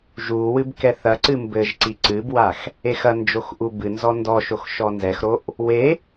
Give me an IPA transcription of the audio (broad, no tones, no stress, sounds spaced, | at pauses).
ʒ u w ɨ b k ɛ θ ɐ ǀ ɨ m b ɘ ʒ ǀ i ǀ ɨ b w a x | e x ɐ n d͡ʒ o x ʔ u b ɨ n z ɔ n d ɔ ʃ o x ʃ ɔ n z ɛ x ɾ o ʔ | w e